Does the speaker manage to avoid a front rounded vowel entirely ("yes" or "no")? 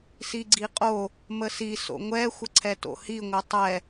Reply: yes